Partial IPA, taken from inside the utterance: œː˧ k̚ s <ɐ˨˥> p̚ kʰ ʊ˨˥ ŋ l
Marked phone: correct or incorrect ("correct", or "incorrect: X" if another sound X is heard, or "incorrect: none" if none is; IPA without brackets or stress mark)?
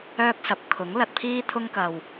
correct